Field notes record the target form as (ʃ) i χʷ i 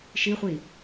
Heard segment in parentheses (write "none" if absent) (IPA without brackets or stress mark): ʃ